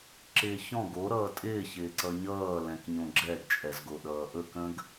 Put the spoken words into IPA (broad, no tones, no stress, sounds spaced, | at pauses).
ǁ ɪː ç ɔ̃ ɡ o ɾ ʌː tʼ ɪː ç ɪː ǀ ʌ ɲ ʌː l ɛ̃ k ɲ õ ɡ͡ǁ ɛ ɡ t͡ʃʼ ɛ z ɡ o ɗ ʌː ʔ ɵ k ə̃ ɡ